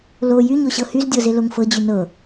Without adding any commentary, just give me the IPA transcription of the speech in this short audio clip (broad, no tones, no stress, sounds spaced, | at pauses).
l o j y ɲ o ɕ ɤ h y z dʲ ɤ z e l o ŋ f ɤ d͡ʑ y n ɤ